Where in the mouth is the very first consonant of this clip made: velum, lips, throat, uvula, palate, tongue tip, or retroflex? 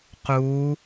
uvula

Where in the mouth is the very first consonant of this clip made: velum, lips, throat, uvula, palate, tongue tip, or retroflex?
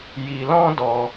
palate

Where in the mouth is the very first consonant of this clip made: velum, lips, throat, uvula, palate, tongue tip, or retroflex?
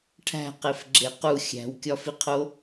retroflex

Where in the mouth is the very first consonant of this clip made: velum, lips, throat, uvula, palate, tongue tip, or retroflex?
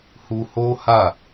throat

